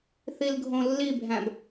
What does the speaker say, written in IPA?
θ i l ɡʱ õ lː i bʱ æ̃ b

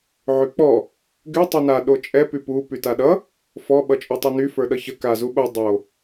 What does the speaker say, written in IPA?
ʕ y k͡p ɔ | ɡ y tˤ y n a ɗ o t͡ʃʼ ɛ p y p u p y t a ɗ ʌ | f ɔ ɓ ʌ t͡ʃʼ o tˤ o n y f ə˞ ɗ ʌ ç ə k a z u ɓ o dˤ o

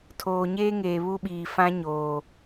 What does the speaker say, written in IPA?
tʰ oː˨ ɲ eː˦ ŋ eː˨ β u˦ ɓ iː˨ f ã˦ ɲ oː˨

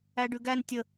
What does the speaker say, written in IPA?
æ ɖ ʉ ɡ æ n tʲ ə

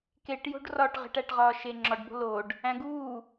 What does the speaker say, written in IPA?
k e ʈ j o̤ ɖ r ɒ ʈ ʁ e̤ ʈ æ ʈ ʁ ɒː ʃ e ŋ͡ǁ ɒ ɖ b o̤ l o ɖ | æ̃ ɡ uː

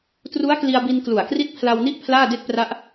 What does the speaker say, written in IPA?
t r u˦˥ a̯ k l i˧ a̯ b i˧ n k l u˨˩ a̯ k r i˦˥ t̚ pʰ l a˧ w n i˦˥ ʔ pʰ l aː˥˩ d e˥˩ k̚ p r a˦˥ ʔ

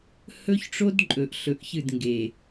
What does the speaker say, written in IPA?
h ɵ˦ ç ʈ͡ʂ o˦ d ǃʼ ɵ˨ ʔ ɬ ɵ˨ ʔ ç ɨ˦˨ d ŋ ɡ e˨

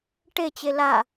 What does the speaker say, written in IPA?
ʈ e t͡ɕ e l a

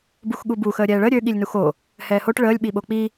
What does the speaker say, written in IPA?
b u x ɠ u b u x əː ɾʲ ɛː ɭ ə ɾʲ ø ɠ i lʲ n u x o | h ɛː h o ʈ ɭ əː lʲ ɓ i ɓ o k͡p i

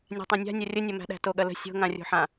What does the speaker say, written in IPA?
nʲ a̤ tˤ ã nʲ a̤ nʲ ɐ rʲ ə nʲ ɐ m æ̤ ɗ æ̤ t o ɠ ɐ l ə̤ sʲ o̤ ŋ ã rʲ o̤ ħ ã

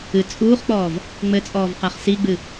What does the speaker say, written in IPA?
ɨ t͡sʼ uː χ k͡p ɔː v | ŋ͡m ɘ t͡sʼ ɔː v q a χ s i ɡ͡b ɨ

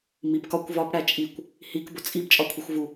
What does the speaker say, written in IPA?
m i b k ɒ kʷ v ɒ p ɽ æ t͡ʃʼ i kʷ | h i k b o t͡sʼ i b t͡ʃʼ ɒ kʷʰ i xʷ v u

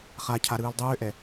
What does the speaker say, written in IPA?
χ a cʰ a ɾ ɯː l dˤ ʏː ʔ ɛ

